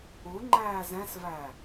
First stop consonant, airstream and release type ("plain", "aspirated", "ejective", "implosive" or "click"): click